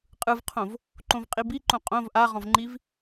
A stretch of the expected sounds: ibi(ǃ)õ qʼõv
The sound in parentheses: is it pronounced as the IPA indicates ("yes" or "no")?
yes